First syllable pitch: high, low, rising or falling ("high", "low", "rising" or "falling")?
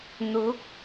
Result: rising